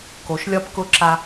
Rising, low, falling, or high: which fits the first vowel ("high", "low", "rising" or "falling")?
low